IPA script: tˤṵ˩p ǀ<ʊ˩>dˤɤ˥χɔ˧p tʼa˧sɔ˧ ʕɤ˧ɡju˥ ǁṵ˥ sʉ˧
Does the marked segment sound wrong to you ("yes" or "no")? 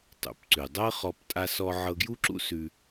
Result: yes